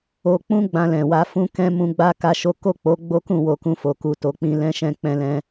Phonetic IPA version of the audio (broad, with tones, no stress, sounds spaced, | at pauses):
o˧ k͡p ũ˦ ɡ͡b ã˧ l ɛ̃˨ w a˧ f ũ˦ k ɛ̃˦ m ũ˧ ɡ͡b a˦ k a˦ ʃ o˦ k o˦˨ k͡p o˨˦ ɡ͡b o˦ k ũ˦˨ w o˧ k ũ˧ f o˨ k u˨ t o˨ k͡p ĩ˧ l ɛ̃˦ ʃ ɛ̃˦˨ k͡p ɛ̃˧ l ɛ̃˧